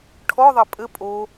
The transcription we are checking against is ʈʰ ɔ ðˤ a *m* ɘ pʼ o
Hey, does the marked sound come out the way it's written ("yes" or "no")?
no